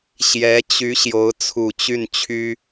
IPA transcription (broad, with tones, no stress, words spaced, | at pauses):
ɕjɛ˧˥t͡ɕy˧˥ ɕjo˧˥ʊ̯t͡sʰu˨˩t͡ɕy˥˩nt͡ɕʰy˥